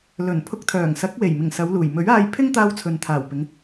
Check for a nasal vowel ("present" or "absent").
absent